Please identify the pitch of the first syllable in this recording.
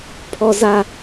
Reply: high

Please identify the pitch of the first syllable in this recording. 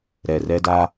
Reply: low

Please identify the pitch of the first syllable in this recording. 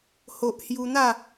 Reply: low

